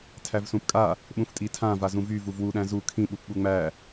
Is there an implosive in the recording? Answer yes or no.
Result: yes